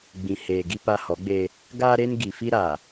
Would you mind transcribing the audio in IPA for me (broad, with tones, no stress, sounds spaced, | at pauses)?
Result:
ɡ͡b ĩ˨ h eː˨ ɡ i˦ p a˦ h ɔ˨˦ ɡ͡b eː˦ | ɡ aː˦ ɾ e˦ n ɡ i˨ f i˦ ɾ aː˨